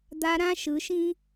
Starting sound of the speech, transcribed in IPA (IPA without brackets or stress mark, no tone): d̪